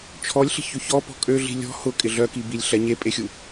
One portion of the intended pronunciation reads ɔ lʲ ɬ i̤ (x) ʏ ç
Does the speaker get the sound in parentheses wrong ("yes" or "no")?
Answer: yes